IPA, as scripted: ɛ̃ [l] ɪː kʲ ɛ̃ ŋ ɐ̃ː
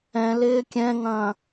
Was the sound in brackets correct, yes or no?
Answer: yes